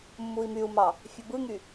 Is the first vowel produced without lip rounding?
no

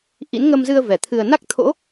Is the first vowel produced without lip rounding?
yes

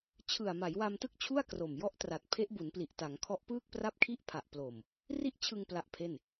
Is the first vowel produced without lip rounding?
yes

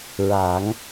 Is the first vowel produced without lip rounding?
yes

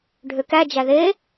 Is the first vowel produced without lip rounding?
no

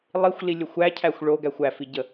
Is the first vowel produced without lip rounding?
yes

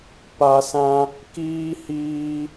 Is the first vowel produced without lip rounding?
yes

